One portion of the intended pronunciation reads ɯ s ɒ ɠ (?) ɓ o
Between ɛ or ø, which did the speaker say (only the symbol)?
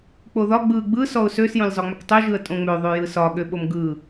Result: ø